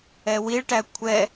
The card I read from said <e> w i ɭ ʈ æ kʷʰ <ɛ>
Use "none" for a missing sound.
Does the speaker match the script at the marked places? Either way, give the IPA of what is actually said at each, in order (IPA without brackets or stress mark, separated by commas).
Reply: ɛ, ɛ